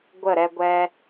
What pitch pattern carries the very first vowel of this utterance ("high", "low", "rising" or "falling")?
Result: falling